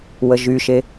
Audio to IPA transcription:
wəʒyʃe

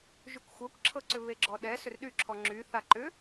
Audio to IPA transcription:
ʒykʷxʷɤkʷǁʰɤǀʏ βeɡ͡ǁɔɗɛ sʏrɗyǁʰɔ ŋ͡ǁyθa ǃʏ

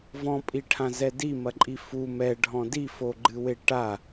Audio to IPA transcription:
vɔ̃pʼiʈʰãzɛ dimɐǃʼi fu mɛɖʱɔ̃ difoɡ͡ǃɨwe ʈa

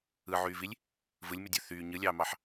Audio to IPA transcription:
ɯʕyːvilʲ | vɯlʲmydʲø θyː ɲɯlʲɑːmɑħ

